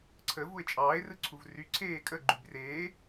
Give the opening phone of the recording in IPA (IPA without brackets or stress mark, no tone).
ǀʰ